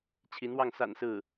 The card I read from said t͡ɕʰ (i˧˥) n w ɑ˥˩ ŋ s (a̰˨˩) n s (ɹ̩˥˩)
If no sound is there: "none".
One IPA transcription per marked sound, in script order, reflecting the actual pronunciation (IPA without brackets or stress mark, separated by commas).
i˧˥, a̰˨˩, ɹ̩˥˩